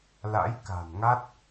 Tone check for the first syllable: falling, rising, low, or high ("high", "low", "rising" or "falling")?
rising